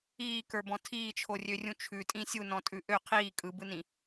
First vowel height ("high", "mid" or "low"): high